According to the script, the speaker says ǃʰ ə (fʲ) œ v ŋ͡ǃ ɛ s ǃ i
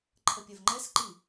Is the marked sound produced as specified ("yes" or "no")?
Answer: no